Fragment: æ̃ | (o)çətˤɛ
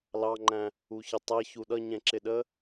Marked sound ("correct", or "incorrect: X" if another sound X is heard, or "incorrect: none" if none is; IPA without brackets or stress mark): incorrect: u